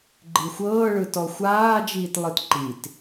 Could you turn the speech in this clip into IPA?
ɡ͡ǃ i xʷ ɤː ɭ ɯ t ɔ xʷ aː d͡ʒ iː t lˠ ɯ t ǃ i t

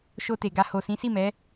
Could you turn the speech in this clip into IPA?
ʃ o˧ t e˨ ɡ a˧ h o˨ s ĩ˨˦ s i˦˨ m ɛ˨˦

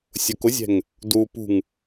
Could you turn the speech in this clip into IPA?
sʲ ʊ k ʊ zʲ ɛ̤ ŋ | d u p ṳ ŋ

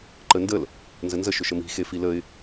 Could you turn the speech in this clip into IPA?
ǃ ə n d ə l | n z ə n z ə ʃ ʏ ʃ ə m i̤ x e f i l ə ɪ̯

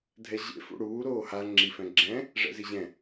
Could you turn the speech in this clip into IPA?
dʱ ɛ ʑ ḛ f ṵ ɽ uː ɾ oː h a ŋ͡ǁ i f ɛ̃ ɡ͡ǁ ɛ̃ | ʐ ɛ̰ z i ʑ ɛ̃

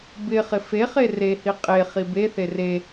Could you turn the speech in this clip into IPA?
b ɪ χ ɪ f e χ e r e h i qʼ e χ i b e θ e r e

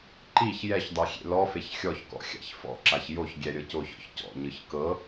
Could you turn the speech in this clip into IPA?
ǃ i ç j ɛ ç dˤ i xʲ ḛ l ɔ f e ç xʲ ɔ ç k ɔ̰ xʲ a̰ ç f ɔ̰ ǁ a ç j o ç ɡʲ ɛ ɾʲ ɤ c o ç ɔ̰ ç c ɔ̰ ɲ ɯ ç k ɤ

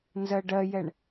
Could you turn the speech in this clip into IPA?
n z ɜ ɖ ɜ j ɛ ɳ

